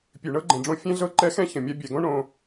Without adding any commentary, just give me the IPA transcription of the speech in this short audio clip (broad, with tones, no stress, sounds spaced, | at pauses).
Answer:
pʲ ʉ˨ ɳ ɤ˦ ɡ͡ǃ ɛ̃˨ ɖ͡ʐ õ˦ fʲ ɛ̃˦ ɮ ɤ˦ ǃ ɛ˦ x ɛ̃˦ ç ə̃˨ mʲ a˦ bʲ ɛ˨ ɡ õ˦ ɳ õ˦